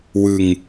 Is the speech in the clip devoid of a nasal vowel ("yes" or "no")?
yes